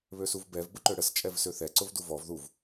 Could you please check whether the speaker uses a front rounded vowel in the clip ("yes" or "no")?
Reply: yes